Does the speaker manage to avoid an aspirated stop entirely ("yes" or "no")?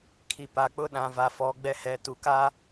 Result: no